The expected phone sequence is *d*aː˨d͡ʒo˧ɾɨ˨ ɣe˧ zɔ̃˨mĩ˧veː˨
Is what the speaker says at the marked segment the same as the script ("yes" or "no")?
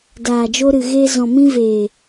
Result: yes